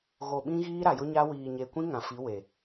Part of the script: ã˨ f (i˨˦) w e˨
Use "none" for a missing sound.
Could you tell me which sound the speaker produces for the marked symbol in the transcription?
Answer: i˨˦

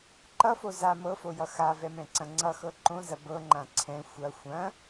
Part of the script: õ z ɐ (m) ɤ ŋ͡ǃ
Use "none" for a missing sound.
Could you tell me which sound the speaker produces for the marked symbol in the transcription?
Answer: b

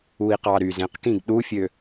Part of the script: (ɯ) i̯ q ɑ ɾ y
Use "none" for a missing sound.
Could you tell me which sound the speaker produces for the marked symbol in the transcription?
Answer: u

